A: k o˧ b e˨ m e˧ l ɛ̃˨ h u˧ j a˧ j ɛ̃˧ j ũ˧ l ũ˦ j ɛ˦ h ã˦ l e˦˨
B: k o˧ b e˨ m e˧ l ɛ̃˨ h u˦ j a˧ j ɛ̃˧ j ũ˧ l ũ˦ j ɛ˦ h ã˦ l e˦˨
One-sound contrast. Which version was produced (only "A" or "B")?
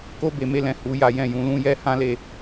A